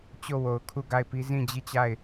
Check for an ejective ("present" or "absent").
absent